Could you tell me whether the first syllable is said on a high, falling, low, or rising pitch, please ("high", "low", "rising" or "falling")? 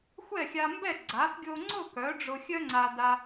falling